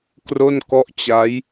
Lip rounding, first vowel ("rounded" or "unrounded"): rounded